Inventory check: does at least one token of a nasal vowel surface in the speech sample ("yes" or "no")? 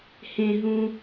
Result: yes